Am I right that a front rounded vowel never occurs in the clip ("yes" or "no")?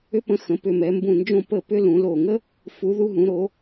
no